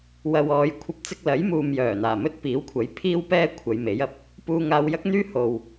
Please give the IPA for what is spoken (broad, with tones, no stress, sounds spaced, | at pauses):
w ɐ˨ w ɔː˨ j kʷʰ ɐ˧ p̚ t͡s ɪ˧ k̚ l ɐ˨˥ j m uː˨ m j œː˨˩ n̪ aː˨˩ m ɵ˥ t̚ p iː˨˥ w kʷʰ ɐ˨˥ j pʰ iː˥ w p ɛː˥ kʷʰ ɐ˨˧ j m e˨˥ j ɐ˨ p̚ | p uː˧ ŋ aː˧ w j ɐ˥ k̚ n̪ yː˥ h o˨ w